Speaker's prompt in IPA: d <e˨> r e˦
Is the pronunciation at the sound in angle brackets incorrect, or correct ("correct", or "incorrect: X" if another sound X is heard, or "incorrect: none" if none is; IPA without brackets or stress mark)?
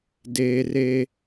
incorrect: eː˨